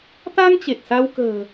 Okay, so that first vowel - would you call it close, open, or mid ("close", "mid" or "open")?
open